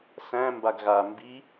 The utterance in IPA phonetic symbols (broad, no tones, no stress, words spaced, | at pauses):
sæ̃ mbaɡɣa mbi